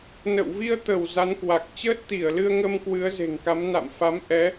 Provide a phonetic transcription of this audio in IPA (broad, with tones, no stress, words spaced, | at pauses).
nə̰˧˨wvi˧ə̯ t̪ə˧˩w za˨˦nkwa˨˩k̚ t͡ɕəː˦˥t̚t̪i˧˩ə̯lɨ˧ə̯ŋə˧m kwɨ˨˦ə̯ze̤˨˩ŋka˨˦m na̰˧˨mfa˨˦m ʔɛ˨˦